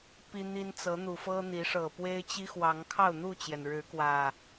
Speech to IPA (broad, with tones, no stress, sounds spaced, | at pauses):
p i˦ n̪ i˦ n t͡s ɤ˨˦ n̪ u˨˩ f ɤ˦ n̪ i˨˦ ʂ ɤ˨˩ p w e˦ ɪ̯ t͡ɕ i˦ x w ɑ˨˦ ŋ kʰ ɑ˥˨ ʊ̯ n̪ u˥˨ t͡ɕ j ɛ˩ n ɻ ɻ̩˨˦ k w ä˨˩